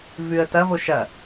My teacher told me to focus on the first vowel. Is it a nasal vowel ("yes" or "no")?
no